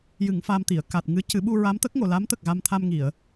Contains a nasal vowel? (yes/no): no